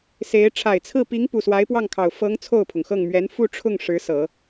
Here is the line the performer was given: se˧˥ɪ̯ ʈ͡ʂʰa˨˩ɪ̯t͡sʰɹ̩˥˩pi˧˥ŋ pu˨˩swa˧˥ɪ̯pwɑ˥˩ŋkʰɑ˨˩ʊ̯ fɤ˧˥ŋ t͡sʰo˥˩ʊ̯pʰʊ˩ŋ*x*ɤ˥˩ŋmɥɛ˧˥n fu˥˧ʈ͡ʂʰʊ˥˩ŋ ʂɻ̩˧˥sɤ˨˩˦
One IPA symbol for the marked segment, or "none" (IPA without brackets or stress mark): x